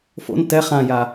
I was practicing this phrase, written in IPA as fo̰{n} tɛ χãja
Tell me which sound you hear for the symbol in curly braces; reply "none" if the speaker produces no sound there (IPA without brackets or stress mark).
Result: n